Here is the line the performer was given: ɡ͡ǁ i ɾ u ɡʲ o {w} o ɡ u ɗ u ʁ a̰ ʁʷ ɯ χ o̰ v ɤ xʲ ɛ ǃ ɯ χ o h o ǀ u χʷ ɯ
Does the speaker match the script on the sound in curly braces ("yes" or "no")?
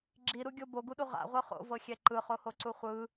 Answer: no